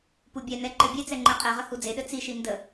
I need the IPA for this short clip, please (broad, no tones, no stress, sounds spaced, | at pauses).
p u bʲ ɛ n ɛ ǃ ɘ bʲ e t͡s ɛ ŋ͡ǃ ɛ qʼ ɛ ʁ ə h u d͡z e ɗ ɘ t͡s i ʃ i n d ə